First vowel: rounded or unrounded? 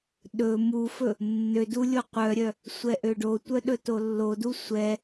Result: rounded